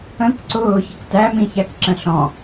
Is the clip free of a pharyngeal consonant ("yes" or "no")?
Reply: yes